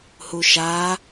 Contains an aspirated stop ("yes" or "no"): no